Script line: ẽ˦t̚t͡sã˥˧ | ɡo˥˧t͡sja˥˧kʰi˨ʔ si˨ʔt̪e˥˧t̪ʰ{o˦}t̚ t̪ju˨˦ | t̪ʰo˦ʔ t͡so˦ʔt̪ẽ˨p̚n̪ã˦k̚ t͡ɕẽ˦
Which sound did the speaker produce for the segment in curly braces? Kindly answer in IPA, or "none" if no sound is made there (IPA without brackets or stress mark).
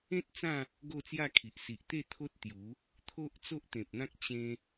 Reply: o˦